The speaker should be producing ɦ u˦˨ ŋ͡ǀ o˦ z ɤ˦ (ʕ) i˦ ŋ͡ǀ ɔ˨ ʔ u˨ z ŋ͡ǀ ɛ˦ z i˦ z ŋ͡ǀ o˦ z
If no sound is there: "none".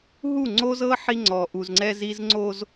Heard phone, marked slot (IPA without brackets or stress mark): ħ